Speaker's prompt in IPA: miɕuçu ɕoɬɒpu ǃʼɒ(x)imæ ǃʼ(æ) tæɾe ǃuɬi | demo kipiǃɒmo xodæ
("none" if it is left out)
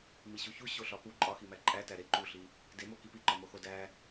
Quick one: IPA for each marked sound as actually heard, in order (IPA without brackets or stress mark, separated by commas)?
x, æ